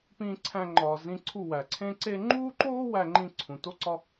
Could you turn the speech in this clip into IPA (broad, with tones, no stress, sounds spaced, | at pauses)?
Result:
p ĩː˦ ǀʰ æ̃˦ ŋ͡ǃ ɒː˧ z ĩ˦ ǀʰ u˦˨ w æ˨ ǀʰ ẽ˦ ǀ e˦ ŋ͡ǃ uː˦ ǃ oː˦ w æ˦ ŋ͡ǃ ĩ˦ ǀʰ ũ˨ t o˦ ǀ ɒ˦